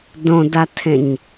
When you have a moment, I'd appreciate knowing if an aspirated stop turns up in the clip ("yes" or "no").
yes